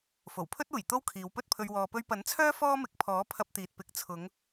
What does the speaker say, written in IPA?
fo˨˩wpʰɵ˥t̚uː˨˩j t̪o˥wkʰiː˨˧wpɵ˥t̚pʰɵ˧ɥ wɔː˨pɵ˧ɥpɐ˨˥nt͡sʰœː˥ fɔː˥mɪ˨˥k̚pʰɔː˨˥ pʰɐ˧p̚t̪iː˨t̚pɪ˨˥k̚ t͡sʰʊ˨˧ŋ

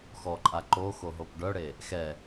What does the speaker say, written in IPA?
xɔǃʼa ǃoxo ɦopɖœɽe | xɛ

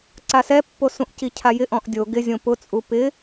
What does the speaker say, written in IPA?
ǀasɛpːo sũʔcicʰajɪ ʔɔ̃ʔdʲo ɡɪzʲõ pʊt͡sʼu pɪ

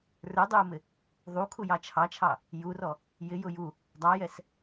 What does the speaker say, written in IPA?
rə˞dˤə˞ʊ̯mɪ | ðˤukʰujɑ t͡ʃʰɑt͡ʃʰɑ | jurɔ | jɪjʊ ju | dˤɑjɛs

